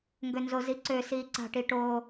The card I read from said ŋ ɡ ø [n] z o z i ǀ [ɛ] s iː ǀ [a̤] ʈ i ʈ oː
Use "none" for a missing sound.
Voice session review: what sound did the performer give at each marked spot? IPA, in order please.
n, ø, a̤

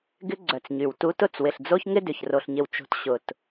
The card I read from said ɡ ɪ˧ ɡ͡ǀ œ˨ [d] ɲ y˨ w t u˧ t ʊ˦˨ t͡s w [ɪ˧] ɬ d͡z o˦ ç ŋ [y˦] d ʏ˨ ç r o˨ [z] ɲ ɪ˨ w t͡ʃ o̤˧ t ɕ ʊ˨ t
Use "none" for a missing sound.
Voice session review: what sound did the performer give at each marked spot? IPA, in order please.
t͡s, ɪ˨, ɪ˦, ɬ

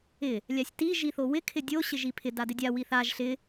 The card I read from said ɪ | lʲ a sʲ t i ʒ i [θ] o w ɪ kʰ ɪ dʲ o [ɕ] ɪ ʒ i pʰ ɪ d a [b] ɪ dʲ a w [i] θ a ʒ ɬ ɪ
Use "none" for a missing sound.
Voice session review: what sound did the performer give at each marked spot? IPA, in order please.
θ, ɕ, d, i

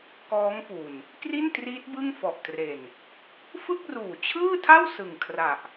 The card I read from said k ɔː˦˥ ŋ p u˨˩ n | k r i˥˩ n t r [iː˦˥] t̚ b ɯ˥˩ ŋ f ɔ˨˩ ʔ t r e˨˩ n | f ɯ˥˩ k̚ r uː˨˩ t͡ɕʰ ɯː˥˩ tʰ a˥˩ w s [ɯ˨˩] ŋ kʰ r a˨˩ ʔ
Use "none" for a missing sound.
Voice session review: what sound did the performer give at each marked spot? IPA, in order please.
iː˦˥, ɯ˨˩

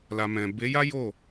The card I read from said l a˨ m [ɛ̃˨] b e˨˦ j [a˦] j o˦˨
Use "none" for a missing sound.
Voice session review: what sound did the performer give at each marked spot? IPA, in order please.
ɛ̃˨, a˦

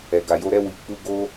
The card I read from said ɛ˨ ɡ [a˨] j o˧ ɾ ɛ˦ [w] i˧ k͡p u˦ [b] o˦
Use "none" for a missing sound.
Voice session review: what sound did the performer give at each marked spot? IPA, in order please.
a˨, w, ɡ

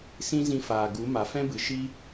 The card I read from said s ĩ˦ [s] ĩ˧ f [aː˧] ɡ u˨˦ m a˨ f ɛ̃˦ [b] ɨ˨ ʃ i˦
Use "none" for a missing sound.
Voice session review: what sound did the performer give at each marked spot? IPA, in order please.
z, aː˨, b

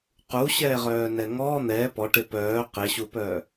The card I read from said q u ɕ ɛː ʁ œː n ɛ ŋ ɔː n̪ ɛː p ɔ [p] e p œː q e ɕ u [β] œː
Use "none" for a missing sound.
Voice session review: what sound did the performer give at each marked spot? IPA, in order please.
ʈ, p

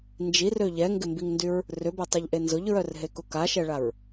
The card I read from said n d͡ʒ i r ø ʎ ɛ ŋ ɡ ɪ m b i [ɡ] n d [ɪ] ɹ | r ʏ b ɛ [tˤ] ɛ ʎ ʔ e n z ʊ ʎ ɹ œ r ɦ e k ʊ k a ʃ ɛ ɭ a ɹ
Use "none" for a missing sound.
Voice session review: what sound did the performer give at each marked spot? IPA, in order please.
ŋ, y, tˤ

